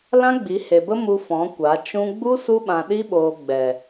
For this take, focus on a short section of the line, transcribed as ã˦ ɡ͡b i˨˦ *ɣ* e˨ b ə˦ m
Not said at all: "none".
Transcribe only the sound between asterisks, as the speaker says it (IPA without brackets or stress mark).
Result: h